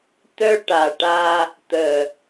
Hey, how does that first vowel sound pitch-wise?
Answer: high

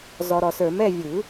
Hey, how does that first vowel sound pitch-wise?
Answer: low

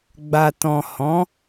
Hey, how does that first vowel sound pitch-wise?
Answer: low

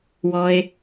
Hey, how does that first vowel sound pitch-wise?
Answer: low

